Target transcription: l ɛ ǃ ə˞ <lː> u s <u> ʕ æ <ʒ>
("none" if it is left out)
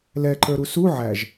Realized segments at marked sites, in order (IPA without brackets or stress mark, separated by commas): ɾ, u, ʒ